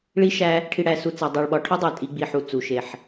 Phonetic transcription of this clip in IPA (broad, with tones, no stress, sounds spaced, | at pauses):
ɭ i˦ ʃ æ˦ | ʈʰ i˨ ɽ æ˨ s u˨ t͡s æ˨ dˤ æ˨ ɭ ɓ ɒ˨˦ ʈʰ o˦ dˤ æ˨ tʼ i˨ ɡ͡b i˨ ħ u˨ t͡s u˨ ʃ e˨ ħ